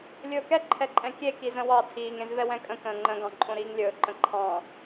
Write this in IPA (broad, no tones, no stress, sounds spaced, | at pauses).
lʲ ɵː k ɛ ǃʰ ɛ ǃʼ ɛ̃ kʲ e k i z ə̃ w ɑ tʰ iː ŋ ẽ z v ɛ w ɛ̃ kʼ ə̃ k ə̃ː ŋ͡ǃ ə̃ ɡ ɑ̃ ǃʼ õ ɾ iː ŋ lʲ ɵː ǃ ə̃ ǃʰ ɑ̃